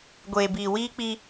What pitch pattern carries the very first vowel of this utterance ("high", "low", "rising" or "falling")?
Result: low